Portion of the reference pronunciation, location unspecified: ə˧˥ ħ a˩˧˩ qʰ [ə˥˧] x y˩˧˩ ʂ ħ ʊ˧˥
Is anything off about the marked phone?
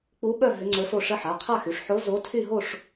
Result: yes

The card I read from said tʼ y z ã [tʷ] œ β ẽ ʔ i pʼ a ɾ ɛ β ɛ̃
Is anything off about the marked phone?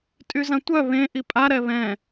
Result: no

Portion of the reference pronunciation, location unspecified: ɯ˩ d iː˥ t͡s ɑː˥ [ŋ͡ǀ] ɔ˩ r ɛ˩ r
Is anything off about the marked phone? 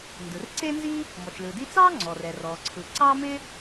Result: no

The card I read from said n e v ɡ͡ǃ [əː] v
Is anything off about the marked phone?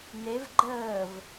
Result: no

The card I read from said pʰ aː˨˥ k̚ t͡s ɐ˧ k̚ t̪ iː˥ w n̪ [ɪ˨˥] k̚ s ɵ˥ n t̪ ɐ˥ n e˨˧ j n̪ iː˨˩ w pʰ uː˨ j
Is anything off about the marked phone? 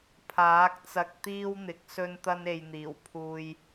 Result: no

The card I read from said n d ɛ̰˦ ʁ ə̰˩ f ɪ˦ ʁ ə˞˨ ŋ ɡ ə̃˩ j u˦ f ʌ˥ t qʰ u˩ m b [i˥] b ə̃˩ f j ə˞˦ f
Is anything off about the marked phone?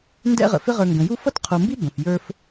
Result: no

